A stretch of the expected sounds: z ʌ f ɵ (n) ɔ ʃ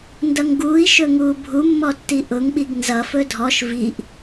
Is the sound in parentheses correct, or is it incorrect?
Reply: incorrect